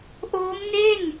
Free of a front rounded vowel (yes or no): yes